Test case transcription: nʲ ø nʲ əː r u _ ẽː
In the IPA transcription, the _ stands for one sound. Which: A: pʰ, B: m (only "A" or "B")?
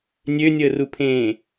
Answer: A